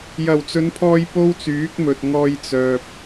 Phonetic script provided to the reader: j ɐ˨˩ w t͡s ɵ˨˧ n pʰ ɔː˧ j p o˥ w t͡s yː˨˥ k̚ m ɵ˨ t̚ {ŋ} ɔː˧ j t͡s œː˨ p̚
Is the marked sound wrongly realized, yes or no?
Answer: no